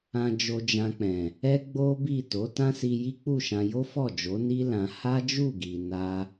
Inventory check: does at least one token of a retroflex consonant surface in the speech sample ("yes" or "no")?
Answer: no